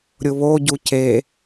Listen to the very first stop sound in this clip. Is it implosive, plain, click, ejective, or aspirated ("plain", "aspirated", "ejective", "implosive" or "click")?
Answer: plain